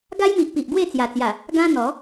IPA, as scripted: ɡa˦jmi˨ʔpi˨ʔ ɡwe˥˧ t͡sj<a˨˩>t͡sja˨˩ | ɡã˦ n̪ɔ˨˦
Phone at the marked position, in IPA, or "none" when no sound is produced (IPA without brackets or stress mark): a˨˩